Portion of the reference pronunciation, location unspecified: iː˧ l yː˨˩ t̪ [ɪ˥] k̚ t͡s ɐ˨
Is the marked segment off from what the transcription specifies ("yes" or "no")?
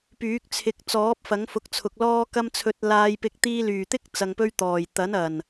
no